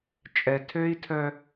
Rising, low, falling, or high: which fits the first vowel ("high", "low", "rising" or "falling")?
low